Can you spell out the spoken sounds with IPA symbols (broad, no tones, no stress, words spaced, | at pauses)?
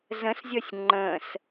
zə̃szʲɔsʲ ŋ͡ǃə̃s